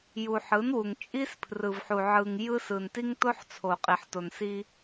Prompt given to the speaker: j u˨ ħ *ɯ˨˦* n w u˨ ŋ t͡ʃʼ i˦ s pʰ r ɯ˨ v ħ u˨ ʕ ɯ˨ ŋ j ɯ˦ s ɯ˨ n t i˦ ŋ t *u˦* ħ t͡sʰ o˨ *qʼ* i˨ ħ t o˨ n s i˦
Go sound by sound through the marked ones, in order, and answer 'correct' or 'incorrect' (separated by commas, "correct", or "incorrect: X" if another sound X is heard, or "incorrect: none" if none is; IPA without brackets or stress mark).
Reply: correct, incorrect: o˦, correct